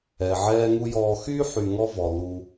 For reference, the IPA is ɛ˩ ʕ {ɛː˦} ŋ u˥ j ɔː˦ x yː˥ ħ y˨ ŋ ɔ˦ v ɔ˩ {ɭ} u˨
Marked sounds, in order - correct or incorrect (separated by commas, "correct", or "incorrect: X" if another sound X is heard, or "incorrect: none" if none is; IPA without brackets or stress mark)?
correct, incorrect: l